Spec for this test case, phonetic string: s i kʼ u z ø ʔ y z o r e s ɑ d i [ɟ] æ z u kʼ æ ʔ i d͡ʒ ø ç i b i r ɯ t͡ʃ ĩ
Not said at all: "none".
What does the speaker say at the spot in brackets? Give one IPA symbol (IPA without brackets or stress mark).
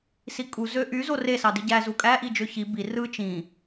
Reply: ɟ